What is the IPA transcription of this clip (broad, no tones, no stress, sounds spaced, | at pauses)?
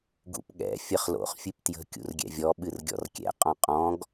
ɡ ṵ p ɠ ɛ̰ fʲ ə χ l o̰ χ fʲ ɨ p t j ə̤ kʲ ṵ r ɡʲ ɛ̰ vʲ ɔ ɓ ɨ r ɡʲ ɔ̰ r kʲ ɛ̰ qʼ ɔ̃ qʼ ɔ̃ ɡ